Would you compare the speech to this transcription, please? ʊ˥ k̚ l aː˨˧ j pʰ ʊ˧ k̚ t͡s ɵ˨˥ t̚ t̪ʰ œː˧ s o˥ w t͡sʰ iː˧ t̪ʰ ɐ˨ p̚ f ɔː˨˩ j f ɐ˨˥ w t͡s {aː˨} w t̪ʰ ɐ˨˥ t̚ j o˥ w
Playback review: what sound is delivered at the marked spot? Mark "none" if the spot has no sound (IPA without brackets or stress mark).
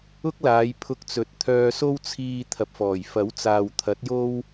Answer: aː˨